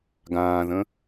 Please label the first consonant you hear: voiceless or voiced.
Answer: voiced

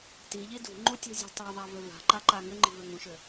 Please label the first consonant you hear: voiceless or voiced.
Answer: voiceless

